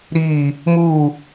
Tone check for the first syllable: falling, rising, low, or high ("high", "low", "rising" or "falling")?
falling